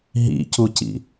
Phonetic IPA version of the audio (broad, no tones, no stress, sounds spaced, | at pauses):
ɦ ḭ c u c ḭ